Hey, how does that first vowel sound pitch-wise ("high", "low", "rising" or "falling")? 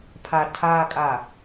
low